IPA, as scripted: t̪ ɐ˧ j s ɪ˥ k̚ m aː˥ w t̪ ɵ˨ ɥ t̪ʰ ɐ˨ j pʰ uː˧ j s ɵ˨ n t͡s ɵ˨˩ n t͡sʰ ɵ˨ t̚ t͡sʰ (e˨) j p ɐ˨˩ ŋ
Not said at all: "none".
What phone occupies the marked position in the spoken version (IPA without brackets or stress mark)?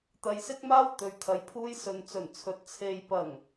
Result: e˨